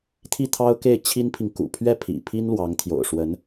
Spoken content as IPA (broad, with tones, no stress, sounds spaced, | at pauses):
t̪ʰ i˥˩ t̪ʰ ɑ˥ ʊ̯ k e˥˩ ɪ̯ t͡ɕʰ i˥ n pʰ i˨ ŋ k ṵ˨˩ pʰ ɥ ɛ˥˩ pʰ ḭ˨˩ pʰ i˥ n l w ɑ˧˥ ŋ t̪ʰ j o̰˨˩ ʊ̯ ʂ w ə˧˥ n